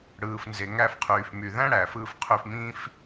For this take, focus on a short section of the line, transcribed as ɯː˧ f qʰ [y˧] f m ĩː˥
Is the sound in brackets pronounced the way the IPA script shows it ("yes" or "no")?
yes